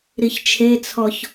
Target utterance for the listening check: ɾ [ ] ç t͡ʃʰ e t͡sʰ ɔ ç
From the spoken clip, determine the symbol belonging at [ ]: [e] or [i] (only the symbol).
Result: i